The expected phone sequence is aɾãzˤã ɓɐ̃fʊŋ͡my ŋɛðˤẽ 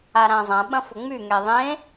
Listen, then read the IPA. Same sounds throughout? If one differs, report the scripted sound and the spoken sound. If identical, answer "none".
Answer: none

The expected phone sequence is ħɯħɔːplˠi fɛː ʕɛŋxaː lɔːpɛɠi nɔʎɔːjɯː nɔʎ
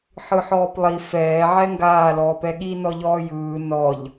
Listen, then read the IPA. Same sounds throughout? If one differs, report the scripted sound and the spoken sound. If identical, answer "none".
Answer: x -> ɡ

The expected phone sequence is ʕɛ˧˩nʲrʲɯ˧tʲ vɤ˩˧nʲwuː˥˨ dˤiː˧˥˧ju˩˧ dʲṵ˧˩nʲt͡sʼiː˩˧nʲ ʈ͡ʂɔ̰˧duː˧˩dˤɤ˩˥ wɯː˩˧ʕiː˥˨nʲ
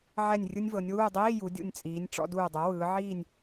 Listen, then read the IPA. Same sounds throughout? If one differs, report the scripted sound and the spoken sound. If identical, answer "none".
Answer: tʲ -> nʲ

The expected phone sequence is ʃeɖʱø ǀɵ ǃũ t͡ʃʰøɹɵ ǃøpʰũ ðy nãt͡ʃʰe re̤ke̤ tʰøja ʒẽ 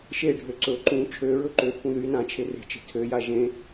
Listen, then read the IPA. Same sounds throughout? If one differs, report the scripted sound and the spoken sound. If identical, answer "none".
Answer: k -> t͡ʃ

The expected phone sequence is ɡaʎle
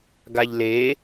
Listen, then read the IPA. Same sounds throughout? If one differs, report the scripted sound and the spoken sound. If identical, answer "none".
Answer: none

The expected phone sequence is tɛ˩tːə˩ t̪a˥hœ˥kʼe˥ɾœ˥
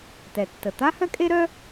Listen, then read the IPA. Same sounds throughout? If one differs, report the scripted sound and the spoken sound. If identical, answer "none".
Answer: none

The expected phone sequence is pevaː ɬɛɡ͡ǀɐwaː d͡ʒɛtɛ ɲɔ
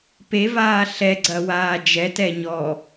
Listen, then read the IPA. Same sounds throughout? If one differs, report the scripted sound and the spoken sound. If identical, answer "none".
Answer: none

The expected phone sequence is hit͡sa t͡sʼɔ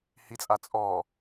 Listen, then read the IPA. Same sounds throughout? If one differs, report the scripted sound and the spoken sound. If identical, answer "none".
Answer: t͡s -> t͡sʼ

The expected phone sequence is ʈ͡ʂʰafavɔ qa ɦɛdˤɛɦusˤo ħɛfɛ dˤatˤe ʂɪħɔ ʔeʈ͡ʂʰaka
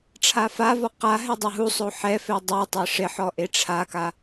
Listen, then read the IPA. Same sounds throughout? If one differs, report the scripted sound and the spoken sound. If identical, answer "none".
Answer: none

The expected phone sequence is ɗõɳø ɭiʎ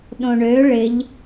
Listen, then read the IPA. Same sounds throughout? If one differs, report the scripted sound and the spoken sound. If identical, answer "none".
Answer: i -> ɪ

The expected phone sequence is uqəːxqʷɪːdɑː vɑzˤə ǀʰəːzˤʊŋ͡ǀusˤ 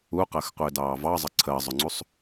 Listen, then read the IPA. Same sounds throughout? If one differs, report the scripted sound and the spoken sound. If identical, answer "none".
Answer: none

